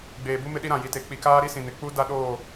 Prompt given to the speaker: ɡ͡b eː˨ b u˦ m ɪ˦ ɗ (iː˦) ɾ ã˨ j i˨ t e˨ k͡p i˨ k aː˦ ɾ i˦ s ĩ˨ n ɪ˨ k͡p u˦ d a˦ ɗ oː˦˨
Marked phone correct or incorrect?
incorrect